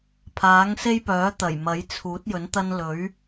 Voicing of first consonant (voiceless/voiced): voiceless